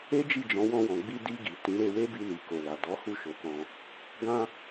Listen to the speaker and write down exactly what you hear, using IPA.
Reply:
e˦ d͡ʒ i˦˨ d͡ʒ ɔ̃˨˦ w ɔ̃˧ w ɔ̃˨ ɡ͡b i˧ d i˧ ɡ i˨ t ĩ˨˦ ɾ e˧ w e˦ b i˧ l i˨ k o˨ l a˨ d ɔ˨˦ h u˦˨ ʃ o˨˦ k ɔ̃˧ | ɡ ã˦

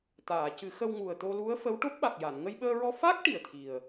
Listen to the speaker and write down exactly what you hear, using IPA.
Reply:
t̪ aː˨˩˨ c ɨ˨˩˦ x ə˧ w ŋ u˨˩ ə̯ t̪ o˧ l u˧˥ ə̯ f ə˧˥ w ʈ o˦˥ p̚ ɓ a˨˩ k̚ j a˨˩˨ n ŋ ə˧ j ɓ əː˧ ɹ ɔ˧ f a˦˥ k̚ ʈ i˨˩ ə̯ t̪ʰ i˨˩ ə̯

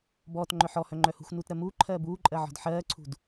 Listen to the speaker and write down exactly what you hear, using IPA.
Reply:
b ɔː t ŋ͡ǃ œ ħ ɔ h œ ŋ͡ǃ œ h ṳ x n uː t ɾ ɜ m uː ǃʰ ɜː b uː ǃʼ ɜ ʕ ɔ̤ d ħ ɜː ǀʰ ṳ d

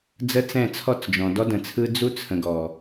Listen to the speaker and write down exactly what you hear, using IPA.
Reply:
d͡z ə˦ t͡s ɛ̃˦˨ t͡sʰ ɔ˦˨ t͡s d͡ʒ ɔ̃˨ d ɔ˦ d ə̃˨ t͡sʰ ɯ˦ d͡z u˦ t͡sʰ ə̃˨ ɡ ɔ˨

